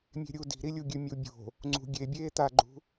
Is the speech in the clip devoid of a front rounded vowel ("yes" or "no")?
yes